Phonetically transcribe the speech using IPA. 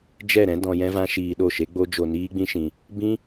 d͡ʒ ɛ˦˨ ɾ ɛ̃˦ d ɔ̃˧ j ɛ̃˦ v ã˦ ʃ iː˧ ɗ o˦˨ ʃ e˦ ɡ͡b o˦ d͡ʒ o˧ n iː˦ ɡ͡b ĩ˦ ʃ ĩ˧ | b ĩ˦

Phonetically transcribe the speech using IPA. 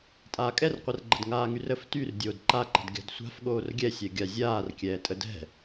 tʼ aː kʼ ɛ r qʷ ɛ r ɡ͡ǃ ə d ŋ aː ŋ y r ə f t y r dʲ oː d ǃ a ǃ ə̤ d ɡʲ a̤ d sʷ a̤ f ɠ oː r ɡʲ ɛ sʲ ɛ ɡʲ a zʲ aː r kʲ ɛː tʼ ə d ɛ̤

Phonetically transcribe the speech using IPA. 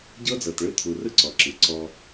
ɟ ɤ˦ d͡z ɤ˨ t ɭ ɯ˦ t̪ʰ u˨ r ɯ˦ ǀ ɔ˨ ǁ ɯ˨ ǀ ɔ˦

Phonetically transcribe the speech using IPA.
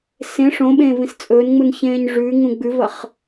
s ẽ ʂ õ ɓ ẽː v ĩ s t͡sʼ ɵː n ŋ͡m u n ç ẽː ɲ ʐ ʉ ŋ ũ ɡ͡b ʉ v ɐ χ

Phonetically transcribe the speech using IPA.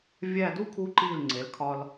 vʲ æ˥˧ d u˥˧ kʰ u˧ ǃ i˧˩ l ŋ͡ǀ e˩˧ l kʰ ɒ˧ l

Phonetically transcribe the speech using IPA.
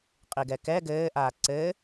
qʼ i ɡ ɛ k ɛ ɡ ɘː ʔ aː ǀ ɘː

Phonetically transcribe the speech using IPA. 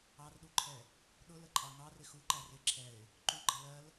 ɑ r ɗ u ǃʰ ɛ | ɗ ʊ l ə ǃʼ ɑ ŋ ɑ r ɪ x u ǃ æ r ɪ ǁʰ ɛ ɪ̯ | ǃ u ɡ͡ǃ ʌ l ɜ l

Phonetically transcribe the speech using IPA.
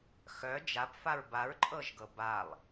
x œ d͡ʒ a p f a ɹ b a ɹ ǃʼ ɤ ʒ ɡ ɤ b a lˠ

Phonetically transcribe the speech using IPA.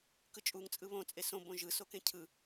k ɯ t͡ʃʼ u ŋ t͡sʼ ɯ β õ t͡sʼ e s õ b õ ʒ ɯ s o k ẽ cʰ ɯ

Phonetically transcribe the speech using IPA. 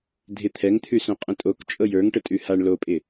dʱ ɪ t̪ʰ ɛ ŋ t̪ʰ ʉ s õ qʼ ə̃ tʼ o k t͡ʃʼ ɤ j ə˞ ŋ ʈ ə tʼ ʉ h a ɳ l o pʼ ɪ

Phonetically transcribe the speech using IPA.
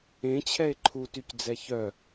ẽ t͡ɕʰ ɛ e̯ ǃʰ u t y c d͡z ɛ ç œ

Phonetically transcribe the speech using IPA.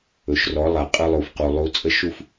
ɵ˨ ʃ r ɔ˨˦ lˠ a˨ qʼ ɯ˧ lˠ u˨ f q u˨ lˠ u˨˦ t͡sʼ ə˦ ʃ u˦ f

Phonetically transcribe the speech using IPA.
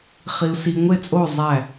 χ i˨ u̯ s i˨ ŋʷ e˦˨ t͡sʼ o˦˨ zˤ æ˦˨

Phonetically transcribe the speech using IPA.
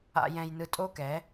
a̰˧ j ɛ̃˧ j n ɯ˧ tʼ o˦ k ɛ˨˦

